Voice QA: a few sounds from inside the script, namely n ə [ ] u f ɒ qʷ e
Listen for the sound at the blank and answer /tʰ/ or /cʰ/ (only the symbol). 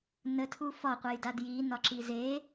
tʰ